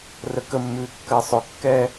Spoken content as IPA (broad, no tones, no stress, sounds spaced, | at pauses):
r ə k ə mː ʉː kː ɜ sˤ ʊ kː ɛː